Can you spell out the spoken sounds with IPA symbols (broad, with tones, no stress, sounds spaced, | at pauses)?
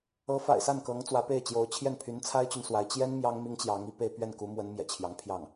ɤ˧˥ f a̰˨˩ ɪ̯ s a˥˩ n k ɤ˧˥ ŋ t͡s w ä˧˥ p e˥˩ ɪ̯ t͡ɕ j o˧˥ ʊ̯ t͡ɕʰ j ɛ˥˩ n pʰ y˧˥ n t͡sʰ a˥ ɪ̯ t͡ɕ y˨ n s w a˧˥ ɪ̯ t͡ɕ j ɛ˥ n m j ɑ˥ ŋ m i˥ ŋ t͡ɕ j ɑ˧˥ ŋ i˥˧ p e˥˧ ɪ̯ p ɥ ɛ˥˩ n k u˧˥ m w ə˧˥ n m j ɛ̰˨˩ t͡ɕʰ j ɑ˧˥ ŋ pʰ j ɑ˥˩ ŋ